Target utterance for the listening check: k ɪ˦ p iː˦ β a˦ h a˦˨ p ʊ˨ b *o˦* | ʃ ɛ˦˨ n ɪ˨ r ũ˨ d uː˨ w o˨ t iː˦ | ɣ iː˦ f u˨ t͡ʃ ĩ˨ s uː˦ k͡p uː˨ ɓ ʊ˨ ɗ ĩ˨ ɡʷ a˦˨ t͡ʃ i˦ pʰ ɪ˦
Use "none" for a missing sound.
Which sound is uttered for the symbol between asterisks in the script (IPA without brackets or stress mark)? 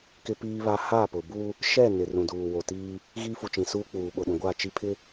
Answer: u˦